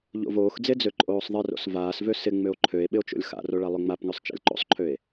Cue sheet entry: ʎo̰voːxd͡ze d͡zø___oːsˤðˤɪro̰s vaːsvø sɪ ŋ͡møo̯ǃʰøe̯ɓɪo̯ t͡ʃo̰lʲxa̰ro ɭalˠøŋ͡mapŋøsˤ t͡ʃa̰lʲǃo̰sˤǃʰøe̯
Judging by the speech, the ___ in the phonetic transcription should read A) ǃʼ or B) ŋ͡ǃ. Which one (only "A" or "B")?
A